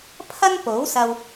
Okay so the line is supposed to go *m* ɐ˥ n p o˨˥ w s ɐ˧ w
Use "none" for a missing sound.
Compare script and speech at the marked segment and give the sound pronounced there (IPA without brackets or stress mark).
pʰ